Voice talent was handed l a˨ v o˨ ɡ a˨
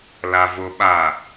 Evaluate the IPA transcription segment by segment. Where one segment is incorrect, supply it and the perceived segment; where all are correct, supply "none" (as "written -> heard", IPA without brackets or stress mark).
ɡ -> ɓ